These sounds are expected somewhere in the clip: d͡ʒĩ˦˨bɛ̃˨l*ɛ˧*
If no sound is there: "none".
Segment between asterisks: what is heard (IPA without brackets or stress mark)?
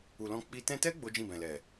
ɛ˨